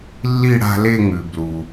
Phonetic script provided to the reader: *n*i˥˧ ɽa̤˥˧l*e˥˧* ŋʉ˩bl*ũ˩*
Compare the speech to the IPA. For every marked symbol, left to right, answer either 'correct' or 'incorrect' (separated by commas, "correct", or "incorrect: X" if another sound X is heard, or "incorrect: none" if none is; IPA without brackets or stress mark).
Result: incorrect: lː, correct, incorrect: u˩